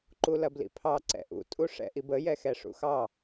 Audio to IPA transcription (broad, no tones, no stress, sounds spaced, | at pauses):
ǃ u l ɐ b l ḭ pʰ ɑ ǀ ɛ̰ ʔ ṵ tʼ u ʂ ɛ̰ ʔ i b ə j ɛ x ɛ ʂ ṵ x ɑ